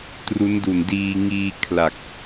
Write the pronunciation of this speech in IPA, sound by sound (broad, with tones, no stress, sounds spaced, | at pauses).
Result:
t r u˦˥ n d u˨˩ n d iː˧ ŋ iː˧ kʰ l a˨˩ k̚